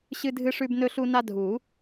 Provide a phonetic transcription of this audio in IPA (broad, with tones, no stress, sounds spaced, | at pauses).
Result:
ɕ ɨ˦ dʱ ɨ˦ ʂ ʉ˦ b n ɵ˦ ɬ u˦ n a˦ dʱ u˨˩˦